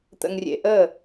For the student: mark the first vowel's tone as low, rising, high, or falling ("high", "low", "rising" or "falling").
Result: low